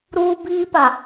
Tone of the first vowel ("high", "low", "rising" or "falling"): high